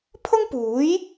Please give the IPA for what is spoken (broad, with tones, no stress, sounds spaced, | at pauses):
pʰ ʊ˥ ŋ p uː˨˥ j